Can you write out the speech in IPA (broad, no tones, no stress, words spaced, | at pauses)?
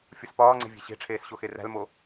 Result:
fʲuspɒːŋ͡ǀe̤ vʲe̤ɕe̤ʈ͡ʂʰeːs ɕoxeræ̤lmo